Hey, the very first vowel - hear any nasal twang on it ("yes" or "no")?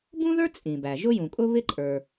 yes